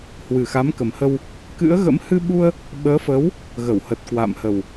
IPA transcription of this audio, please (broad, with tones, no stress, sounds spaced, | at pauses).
h w ɨ˨˩ x a˨˦ m k ə˨˩ m h ə˧ w | k ɨ̰˧˥ ə̯ ɣ ə̰˧˥ m h ɨ˧ ɓ u˧ ə̯ | ɓ əː˨˦ f əː˨˦ w | ɣ ə˧˩ w h ə˨˩ t̚ k w a̰˧˨ m h ə˨˩ w